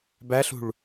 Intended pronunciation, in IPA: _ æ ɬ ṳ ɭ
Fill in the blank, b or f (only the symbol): b